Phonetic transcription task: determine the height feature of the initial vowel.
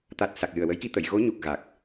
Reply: low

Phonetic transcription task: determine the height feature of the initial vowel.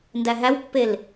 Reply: low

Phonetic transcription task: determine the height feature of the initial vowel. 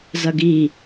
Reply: low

